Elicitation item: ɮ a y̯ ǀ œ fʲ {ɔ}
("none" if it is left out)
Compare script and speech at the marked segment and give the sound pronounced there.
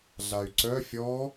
ɔ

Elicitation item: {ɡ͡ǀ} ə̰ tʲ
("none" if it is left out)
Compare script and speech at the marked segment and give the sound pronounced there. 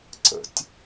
ǀ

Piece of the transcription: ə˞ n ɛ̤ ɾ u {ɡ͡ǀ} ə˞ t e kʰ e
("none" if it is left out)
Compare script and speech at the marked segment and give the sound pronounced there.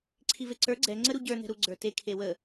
ɡ͡ǀ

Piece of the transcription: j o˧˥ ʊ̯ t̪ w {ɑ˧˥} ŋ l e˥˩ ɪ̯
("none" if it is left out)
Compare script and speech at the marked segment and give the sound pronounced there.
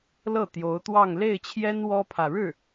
ɑ˥˧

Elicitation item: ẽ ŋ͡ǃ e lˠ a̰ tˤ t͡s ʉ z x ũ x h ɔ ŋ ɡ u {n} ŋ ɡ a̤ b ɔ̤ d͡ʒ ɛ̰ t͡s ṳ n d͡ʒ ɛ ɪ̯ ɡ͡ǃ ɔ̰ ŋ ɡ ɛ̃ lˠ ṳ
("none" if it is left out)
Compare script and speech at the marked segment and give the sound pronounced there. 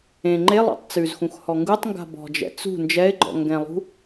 tˤ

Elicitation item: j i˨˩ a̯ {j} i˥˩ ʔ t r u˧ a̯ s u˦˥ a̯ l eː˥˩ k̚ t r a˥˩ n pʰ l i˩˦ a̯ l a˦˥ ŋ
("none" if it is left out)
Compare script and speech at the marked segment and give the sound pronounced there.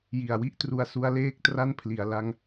w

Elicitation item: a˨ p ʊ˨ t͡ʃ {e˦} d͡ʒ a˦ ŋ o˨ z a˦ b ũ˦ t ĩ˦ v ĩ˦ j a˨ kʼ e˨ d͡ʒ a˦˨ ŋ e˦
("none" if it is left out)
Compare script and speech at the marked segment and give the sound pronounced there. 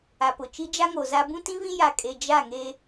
i˦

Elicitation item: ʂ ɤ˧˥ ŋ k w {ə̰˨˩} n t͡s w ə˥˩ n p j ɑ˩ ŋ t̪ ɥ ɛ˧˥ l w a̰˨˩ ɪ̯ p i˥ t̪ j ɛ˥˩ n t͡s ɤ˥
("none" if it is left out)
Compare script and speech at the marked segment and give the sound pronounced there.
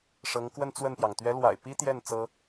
ə˥˧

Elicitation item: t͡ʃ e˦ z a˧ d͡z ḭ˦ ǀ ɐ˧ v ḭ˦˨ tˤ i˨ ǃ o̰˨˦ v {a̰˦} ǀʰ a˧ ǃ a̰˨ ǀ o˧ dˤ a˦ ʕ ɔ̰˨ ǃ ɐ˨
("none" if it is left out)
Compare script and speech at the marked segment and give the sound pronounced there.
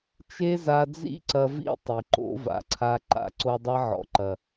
a̰˨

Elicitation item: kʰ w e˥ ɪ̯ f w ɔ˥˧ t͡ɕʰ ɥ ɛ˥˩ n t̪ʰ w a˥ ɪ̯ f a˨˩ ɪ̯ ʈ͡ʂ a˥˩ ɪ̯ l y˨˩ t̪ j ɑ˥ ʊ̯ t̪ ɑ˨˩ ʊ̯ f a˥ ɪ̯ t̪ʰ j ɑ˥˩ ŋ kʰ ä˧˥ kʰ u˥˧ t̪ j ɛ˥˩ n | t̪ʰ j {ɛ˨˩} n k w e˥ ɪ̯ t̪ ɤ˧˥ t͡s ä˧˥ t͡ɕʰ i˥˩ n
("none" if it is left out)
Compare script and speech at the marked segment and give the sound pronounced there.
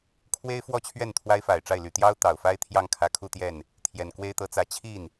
ɛ˨˩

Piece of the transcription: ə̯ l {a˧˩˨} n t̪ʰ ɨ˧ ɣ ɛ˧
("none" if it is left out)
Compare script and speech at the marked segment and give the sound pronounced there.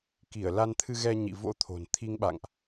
a˧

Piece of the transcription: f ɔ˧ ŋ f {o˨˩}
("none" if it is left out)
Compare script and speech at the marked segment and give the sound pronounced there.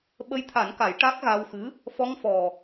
ɔ˨˩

